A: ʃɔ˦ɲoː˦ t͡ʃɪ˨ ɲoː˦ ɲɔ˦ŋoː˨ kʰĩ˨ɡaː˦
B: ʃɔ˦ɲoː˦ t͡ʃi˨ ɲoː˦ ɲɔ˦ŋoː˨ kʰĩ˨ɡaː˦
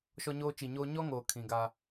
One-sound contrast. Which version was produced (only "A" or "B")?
B